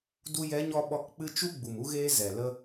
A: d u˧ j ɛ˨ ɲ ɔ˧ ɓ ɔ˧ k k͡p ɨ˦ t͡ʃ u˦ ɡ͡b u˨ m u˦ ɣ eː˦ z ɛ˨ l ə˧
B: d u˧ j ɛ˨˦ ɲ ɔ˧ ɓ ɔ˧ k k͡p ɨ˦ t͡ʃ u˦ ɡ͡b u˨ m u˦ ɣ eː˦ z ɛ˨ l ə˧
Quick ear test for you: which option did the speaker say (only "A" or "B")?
B